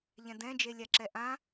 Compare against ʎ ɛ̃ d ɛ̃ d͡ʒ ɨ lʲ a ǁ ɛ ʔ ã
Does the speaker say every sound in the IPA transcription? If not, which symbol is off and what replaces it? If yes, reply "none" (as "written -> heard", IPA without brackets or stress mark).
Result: ɨ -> e